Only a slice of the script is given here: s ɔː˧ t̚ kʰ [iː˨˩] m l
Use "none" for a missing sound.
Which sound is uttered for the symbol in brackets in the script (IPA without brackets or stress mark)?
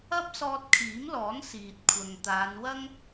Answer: iː˨˥